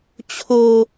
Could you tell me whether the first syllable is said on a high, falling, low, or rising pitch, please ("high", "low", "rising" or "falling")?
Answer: low